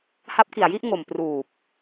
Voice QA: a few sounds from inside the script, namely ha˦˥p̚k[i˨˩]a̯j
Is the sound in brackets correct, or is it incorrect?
correct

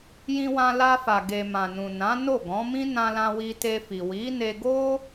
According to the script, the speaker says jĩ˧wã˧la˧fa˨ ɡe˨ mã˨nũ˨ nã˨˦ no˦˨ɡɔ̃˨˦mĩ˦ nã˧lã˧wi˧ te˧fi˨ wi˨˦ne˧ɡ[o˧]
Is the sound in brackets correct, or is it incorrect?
incorrect: o˦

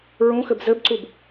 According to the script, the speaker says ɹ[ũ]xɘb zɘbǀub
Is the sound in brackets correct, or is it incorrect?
correct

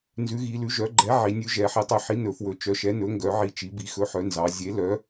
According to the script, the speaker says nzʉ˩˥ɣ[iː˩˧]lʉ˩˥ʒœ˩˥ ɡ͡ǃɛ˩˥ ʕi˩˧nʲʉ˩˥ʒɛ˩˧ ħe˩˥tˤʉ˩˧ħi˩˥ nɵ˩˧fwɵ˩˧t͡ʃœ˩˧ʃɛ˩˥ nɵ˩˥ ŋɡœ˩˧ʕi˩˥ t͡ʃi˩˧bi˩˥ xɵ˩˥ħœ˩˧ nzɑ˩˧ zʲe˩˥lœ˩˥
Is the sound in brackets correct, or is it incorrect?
incorrect: i˩˧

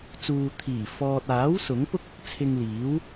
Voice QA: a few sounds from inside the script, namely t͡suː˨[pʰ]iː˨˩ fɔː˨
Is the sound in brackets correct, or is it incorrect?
incorrect: t̪ʰ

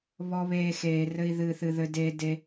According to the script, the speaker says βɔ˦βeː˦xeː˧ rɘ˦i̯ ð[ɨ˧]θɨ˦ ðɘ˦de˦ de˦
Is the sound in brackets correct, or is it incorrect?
incorrect: ɨ˦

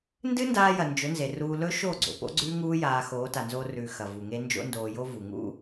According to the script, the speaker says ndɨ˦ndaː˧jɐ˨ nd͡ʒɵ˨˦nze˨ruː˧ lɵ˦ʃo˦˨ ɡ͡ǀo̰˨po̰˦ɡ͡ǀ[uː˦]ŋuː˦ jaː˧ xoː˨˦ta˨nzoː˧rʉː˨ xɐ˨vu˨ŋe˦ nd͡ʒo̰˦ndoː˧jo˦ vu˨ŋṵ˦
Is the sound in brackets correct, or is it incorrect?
incorrect: ʉː˦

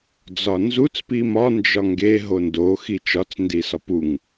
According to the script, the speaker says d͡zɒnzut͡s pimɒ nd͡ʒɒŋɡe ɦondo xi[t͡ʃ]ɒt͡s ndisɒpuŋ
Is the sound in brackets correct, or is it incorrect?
correct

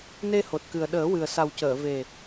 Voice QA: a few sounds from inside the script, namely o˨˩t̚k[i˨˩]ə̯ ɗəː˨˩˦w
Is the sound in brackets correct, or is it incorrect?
incorrect: ɨ˨˩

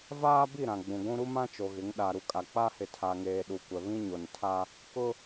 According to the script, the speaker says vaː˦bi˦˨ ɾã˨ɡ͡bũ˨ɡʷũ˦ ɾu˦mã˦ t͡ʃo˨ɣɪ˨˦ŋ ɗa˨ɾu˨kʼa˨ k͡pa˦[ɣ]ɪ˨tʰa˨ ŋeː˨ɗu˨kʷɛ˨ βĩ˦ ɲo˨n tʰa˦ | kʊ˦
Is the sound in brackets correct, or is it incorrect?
incorrect: h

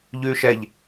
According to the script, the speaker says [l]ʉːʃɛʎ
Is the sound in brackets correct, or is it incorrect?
incorrect: ʎ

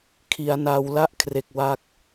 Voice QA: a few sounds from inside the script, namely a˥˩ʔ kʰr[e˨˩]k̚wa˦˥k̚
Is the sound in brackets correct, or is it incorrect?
correct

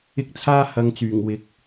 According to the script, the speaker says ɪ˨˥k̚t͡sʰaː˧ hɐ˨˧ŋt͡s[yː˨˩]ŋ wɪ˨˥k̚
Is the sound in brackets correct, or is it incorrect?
correct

